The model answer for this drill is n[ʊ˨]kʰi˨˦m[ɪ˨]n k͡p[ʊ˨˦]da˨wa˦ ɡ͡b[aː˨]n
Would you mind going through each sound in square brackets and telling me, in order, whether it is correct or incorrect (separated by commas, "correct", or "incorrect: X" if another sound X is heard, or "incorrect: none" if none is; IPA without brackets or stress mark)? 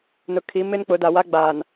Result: correct, incorrect: ɪ˦, correct, correct